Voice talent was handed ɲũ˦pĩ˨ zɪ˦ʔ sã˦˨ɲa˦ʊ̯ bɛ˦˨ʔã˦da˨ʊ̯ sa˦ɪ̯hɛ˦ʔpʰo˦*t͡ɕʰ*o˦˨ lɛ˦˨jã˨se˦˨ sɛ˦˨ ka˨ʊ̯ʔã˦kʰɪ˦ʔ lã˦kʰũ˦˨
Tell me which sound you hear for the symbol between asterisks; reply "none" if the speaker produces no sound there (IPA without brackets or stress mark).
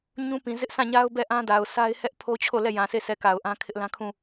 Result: t͡ɕʰ